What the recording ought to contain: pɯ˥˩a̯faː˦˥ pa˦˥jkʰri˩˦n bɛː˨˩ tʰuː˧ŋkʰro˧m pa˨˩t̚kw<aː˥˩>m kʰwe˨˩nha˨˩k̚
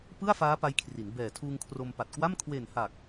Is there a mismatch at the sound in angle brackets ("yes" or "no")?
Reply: yes